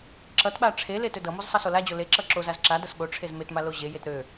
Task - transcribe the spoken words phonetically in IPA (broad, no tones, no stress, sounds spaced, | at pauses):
ǁ ʌ t ɓ a ʈ͡ʂʰ e l e t ø d ʌ m o z sˤ ʌ s o l a d͡ʑ o l e ǁ ʌ ǁ o z a z ǁ a d ʌ s ɠ o ʈ͡ʂʰ e z m e t m a l o ʑ e j e t ɾ ø